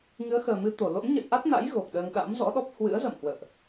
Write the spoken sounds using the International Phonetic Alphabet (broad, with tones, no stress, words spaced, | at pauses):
ŋɨ˨˦ə̯xəː˨˩mɨ˧ t̪o˧˩lo̰˧˥nɲə̰˧˨j ʔa˦˥t̚na̰˧˥j ɣo˨˩k̚ɗəː˧ŋ ɗa̰˧˥mzɔ̰˧˥ ɗɔ˦˥p̚ hwɨ̰˧˥ə̯zə̰ː˧˨mhwə̰ː˧˨ʔ